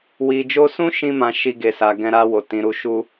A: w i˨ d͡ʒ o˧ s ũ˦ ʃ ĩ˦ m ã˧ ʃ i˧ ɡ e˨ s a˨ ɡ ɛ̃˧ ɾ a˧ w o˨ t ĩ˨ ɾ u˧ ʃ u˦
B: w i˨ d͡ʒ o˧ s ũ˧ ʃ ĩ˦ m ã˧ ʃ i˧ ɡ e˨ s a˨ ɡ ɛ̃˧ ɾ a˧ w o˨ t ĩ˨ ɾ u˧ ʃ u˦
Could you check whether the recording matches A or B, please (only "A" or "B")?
A